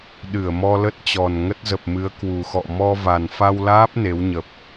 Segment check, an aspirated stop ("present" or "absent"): absent